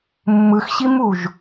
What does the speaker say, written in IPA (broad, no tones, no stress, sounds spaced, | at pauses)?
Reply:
mː ɯ x ɕ i m u ʒ